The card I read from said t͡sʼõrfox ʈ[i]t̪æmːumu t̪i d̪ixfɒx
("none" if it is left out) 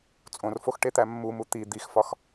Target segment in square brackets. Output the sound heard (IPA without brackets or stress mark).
e